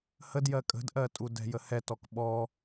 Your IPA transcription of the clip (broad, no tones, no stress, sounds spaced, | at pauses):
h ə d j ɜ kʼ ə̤ d ʔ ɜ tʼ u d ɛ̤ j ə h ɛ t ɔ k ɓ ɔ